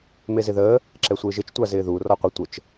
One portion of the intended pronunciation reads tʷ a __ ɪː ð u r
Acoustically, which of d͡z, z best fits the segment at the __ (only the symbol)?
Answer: z